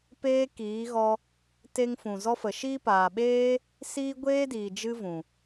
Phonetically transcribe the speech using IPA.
p eː˦ k iː˨˦ ɣ ɔ˧ | t e˧ ŋ f ũ˨ z ɔ˧ f ə˨ ʃ iː˦ p aː˨ ɓ eː˦ | s iː˦ ɡʷ eː˦ d iː˨ d͡ʒ ɨ˦ v ũ˨

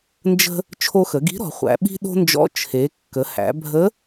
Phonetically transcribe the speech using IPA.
n d͡ʒ ə̤˥ | t͡ʃʰ o˧ x ə˩˧ ɡ i̤˧˥ ɾ ɔ̤˩˧ χʷ æ̰˩˧ ɓ i̤˥ ɗ o̤˥ n d͡ʒ ɔ̰˧˥ t͡ʃʰ e˩˧ kː ə˩˧ h æ̰˩˧ bʱ ə˧˥

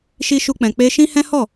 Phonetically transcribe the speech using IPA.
ʃ i˦ ʃ u˦ k͡p ɛ̃˧ k͡p e˦ ʃ ĩ˦ h ɛ̃˦ h ɔ˦˨

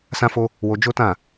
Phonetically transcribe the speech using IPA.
s ã˦ f o˦ | w o˧ d͡ʒ o˦ t ã˦˨

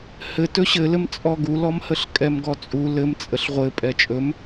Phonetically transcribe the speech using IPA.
h ɘ t ɵ ɕ ɘ l ɘ m t͡sʼ ɔ ɡ u l ɔ m h ə ɬ kʼ ɛ m ɡ ɔ t͡sʼ u l ɘ m t͡sʼ ə ɬ ʁʷ ɘ pʼ ɛ t͡ʃʼ ɵ m

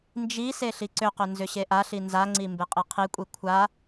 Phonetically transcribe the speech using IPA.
n d͡ʒ i s e ɬ i ǀ ʏ q ʏ n z ʏ ɕ e ʔ a ɬ i n z a ŋ͡ǀ i m b e qʼ i qʰ i kʷʼ i kʷʰ a

